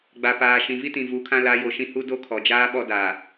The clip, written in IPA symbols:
ɡ͡ba˨paː˨ ʃĩ˨vi˦tĩ˨ vu˨˦kʰã˦ la˨˦jo˨ʃĩ˦ hu˦ do˦kʰɔ˨d͡ʒaː˦ɓɔ˦ da˨

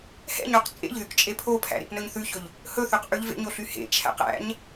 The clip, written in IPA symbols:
hɛ̰ɲoq t͡sʼḛʎðyk t͡ʃʼepʰopʰæ̰ ɾḛpnɵɲθʉçɵʎ | hɵθʉq ʔʉʎvḛɲo ɬyhḛt͡ʃʰæ̰q æ̰ɲ

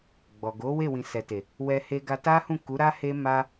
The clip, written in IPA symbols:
ɡ͡bɔ˨ɡo˨˦we˦˨ wĩ˨sɛ˨te˨ | wɛ˧he˧ɡa˧ ta˦hũ˦˨ ku˨˦ ɾa˦he˦ma˦

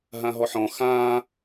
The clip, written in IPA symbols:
ɦãɦɔħɔ̃ xãː

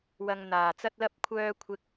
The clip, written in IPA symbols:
wɐ˧ŋn̪aː˨˩t͡sɐ˥t̚lɐ˥p̚ kʷʰœː˧kʷʰɪ˨k̚

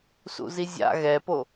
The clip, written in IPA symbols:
sṵzizʲa̰ ɣɛpo

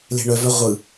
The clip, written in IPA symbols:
le̤ɳœvœ ʁʷɯ

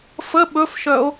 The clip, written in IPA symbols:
fə ɓɵfʃœo̯

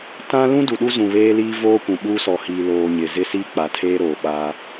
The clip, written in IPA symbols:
tã˦ lũ˦du˨ɗu˦zũ˨ βeː˦liː˦ voː˦kʷũ˨ɓuː˦sɔ˨ hiː˨loː˨ ɲɪ˨ zɪ˦siː˦k͡pa˨tʰeː˦ ɾoː˨ɓaː˦

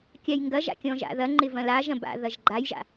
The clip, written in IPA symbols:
kʲajŋɡɐʒa̰ kʲɔ̃ʒa̰ðɐŋ͡ǃɪ vɐ̃laʒɐ̃ ba̰ ðɐʒɡ͡ǃajʒa̰

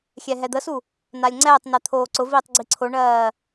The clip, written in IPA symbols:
xʲɛɦɛd̪əsu | nalʲŋ͡ǀɛːtˤnɜ t̪ʰoːǀʊviːtˤ ɡ͡ǀiǀʰoɳɜː

